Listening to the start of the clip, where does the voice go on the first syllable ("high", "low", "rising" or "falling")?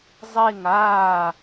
falling